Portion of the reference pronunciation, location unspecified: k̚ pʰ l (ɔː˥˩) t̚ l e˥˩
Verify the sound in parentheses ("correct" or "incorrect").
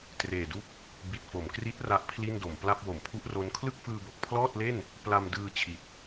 correct